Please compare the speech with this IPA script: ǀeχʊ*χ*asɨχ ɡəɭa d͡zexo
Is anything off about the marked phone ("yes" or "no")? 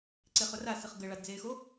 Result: yes